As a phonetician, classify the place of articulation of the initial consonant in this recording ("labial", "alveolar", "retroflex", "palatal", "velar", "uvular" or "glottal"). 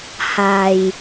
glottal